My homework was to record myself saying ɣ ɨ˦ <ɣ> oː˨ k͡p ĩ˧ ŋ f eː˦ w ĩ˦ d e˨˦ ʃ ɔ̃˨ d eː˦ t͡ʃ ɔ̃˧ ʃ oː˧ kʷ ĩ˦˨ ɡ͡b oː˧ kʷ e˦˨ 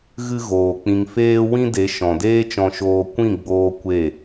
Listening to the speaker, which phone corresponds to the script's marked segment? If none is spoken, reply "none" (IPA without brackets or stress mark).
ɣ